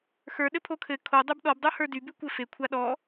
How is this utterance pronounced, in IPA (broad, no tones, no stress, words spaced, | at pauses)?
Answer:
xə˞ ɗɘpʰokʰɘ kʰo dˤə˞bɗɔbdˤə˞ hə˞dybʉkʷɘ fe kʷʰaɗɔ